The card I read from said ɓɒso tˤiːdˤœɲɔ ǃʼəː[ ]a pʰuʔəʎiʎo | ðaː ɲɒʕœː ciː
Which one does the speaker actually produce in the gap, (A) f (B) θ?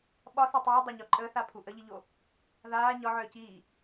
B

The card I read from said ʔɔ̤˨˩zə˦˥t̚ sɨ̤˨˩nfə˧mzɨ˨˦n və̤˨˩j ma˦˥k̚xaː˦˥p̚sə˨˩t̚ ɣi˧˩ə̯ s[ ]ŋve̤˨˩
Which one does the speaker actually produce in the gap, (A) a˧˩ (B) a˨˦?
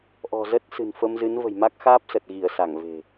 A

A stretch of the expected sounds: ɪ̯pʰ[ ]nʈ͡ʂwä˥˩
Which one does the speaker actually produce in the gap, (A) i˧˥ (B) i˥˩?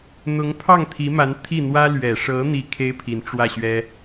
A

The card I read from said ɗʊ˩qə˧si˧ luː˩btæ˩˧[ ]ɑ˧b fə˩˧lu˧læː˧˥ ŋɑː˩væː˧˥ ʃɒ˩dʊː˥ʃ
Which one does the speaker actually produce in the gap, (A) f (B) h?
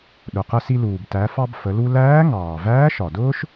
A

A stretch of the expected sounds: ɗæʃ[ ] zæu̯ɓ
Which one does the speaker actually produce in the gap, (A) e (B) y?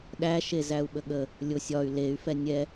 A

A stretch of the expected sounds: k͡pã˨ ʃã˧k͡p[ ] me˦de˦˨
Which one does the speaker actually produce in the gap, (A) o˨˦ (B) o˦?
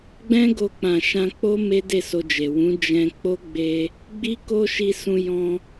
B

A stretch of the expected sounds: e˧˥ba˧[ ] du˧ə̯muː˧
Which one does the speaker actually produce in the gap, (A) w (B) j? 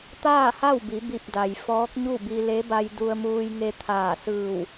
B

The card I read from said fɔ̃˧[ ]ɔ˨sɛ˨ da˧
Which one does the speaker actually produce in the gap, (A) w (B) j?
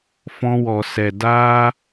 A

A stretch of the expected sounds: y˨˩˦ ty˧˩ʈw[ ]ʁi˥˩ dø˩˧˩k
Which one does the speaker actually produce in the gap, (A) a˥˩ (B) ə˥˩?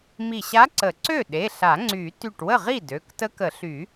B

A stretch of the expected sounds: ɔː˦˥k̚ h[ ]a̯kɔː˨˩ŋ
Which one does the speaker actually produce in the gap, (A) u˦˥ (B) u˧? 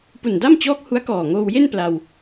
A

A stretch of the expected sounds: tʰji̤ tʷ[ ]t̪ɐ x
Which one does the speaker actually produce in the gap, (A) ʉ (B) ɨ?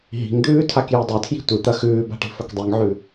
B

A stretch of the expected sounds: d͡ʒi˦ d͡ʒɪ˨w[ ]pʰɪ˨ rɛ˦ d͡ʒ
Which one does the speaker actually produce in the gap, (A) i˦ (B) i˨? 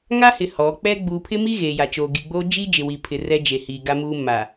B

